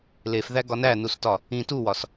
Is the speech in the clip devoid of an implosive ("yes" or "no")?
yes